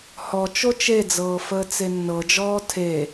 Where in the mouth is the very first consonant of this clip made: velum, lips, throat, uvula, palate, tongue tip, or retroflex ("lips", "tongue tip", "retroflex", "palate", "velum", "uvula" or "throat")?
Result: throat